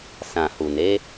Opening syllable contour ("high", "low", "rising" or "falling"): low